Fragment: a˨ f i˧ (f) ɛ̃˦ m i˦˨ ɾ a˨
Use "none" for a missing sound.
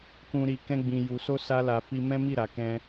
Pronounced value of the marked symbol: m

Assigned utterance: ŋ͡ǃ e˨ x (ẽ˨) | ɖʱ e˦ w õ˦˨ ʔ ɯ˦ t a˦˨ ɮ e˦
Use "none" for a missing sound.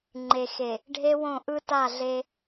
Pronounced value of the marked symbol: e˨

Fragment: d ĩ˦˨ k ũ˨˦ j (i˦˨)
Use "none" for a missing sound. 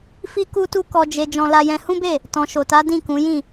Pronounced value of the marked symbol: ĩ˦˨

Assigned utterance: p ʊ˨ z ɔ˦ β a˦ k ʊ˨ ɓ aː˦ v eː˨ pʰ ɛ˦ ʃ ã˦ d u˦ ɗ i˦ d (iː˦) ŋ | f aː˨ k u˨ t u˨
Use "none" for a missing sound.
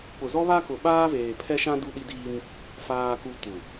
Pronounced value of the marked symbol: iː˦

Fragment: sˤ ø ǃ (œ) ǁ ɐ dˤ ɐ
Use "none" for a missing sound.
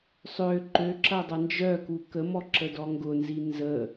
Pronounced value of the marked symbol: ø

